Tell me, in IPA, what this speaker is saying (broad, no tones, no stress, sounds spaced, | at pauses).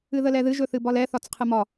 ɨ ð ə l ɛ ð ɨ ʒ ɵ θ ɨ b ɒ l ɛ θ ɒ t͡s qʰ ɨ m ɒ